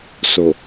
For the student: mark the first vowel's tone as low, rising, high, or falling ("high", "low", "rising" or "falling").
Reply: low